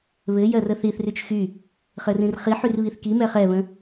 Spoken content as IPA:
β ɘ j ɜ r ə θ i θ r y t͡ʃ x y | χ ɘ r ĩ r χ i ħ y r β i θ k i m ɛ χ ɛ β ə̃

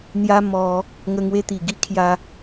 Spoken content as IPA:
n̪ j a˧ m ɔ˧ | ŋ ə˧ ŋ w e˧ t̪ i˨˩ ɡ i˦ kʰ j a˧

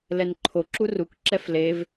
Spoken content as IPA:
l ɛ n ǃʰ o ǁ u r u k ǁ ɛ f l e v

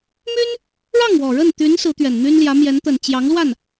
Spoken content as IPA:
m y˥ n | ɻ ɑ˥˩ ŋ w ɔ˨˩ ɻ ə˥˩ n t̪ y˧˥ n s ɹ̩˧˥ t̪ ɥ ɛ˨˩ n n̪ y˥ n l j ä˧˥ m j ɛ˧˥ n t̪ ə˨˩ n t͡ɕ j ɑ˧˥ ŋ l w a˥˩ n

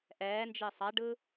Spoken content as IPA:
ʔ ɛː n d͡ʒ e sˤ a ɖ ɯ

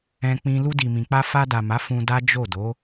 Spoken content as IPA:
ɛ̃˧ k͡p ĩ˧ l u˧ d i˨ m ĩ˨ k͡p a˧ f a˧ d a˨ m a˨˦ f ũ˧ d a˦ d͡ʒ o˦˨ d o˨˦

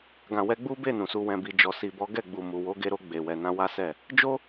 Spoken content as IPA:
ɡ ã˨ w ɛ˧ ɡ͡b u˦ b e˦˨ n ũ˨ s u˨ w ɛ̃˨ b i˨ d͡ʒ ɔ˨ s i˨ b ɔ˨˦ ɡ ɛ˦˨ ɡ͡b u˨ m u˨ w o˨˦ ɡ e˧ ɾ o˧ ɡ͡b e˨ w ɛ˨ n ã˧ w a˦ s ɛ˦˨ | d͡ʒ o˦

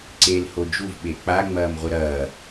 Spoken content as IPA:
ǀ e l h o d͡ʒ u v ɓ e k͡p a ŋ͡m ɐː m ʁʷ ɘ ɾ ɐː

